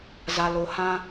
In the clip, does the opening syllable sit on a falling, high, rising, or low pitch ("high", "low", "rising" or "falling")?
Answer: low